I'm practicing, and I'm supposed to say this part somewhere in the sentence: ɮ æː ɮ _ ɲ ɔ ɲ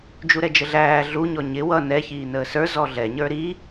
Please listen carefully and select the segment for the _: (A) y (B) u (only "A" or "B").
B